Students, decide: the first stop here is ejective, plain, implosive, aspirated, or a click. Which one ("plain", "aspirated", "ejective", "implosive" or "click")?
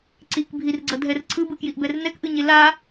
click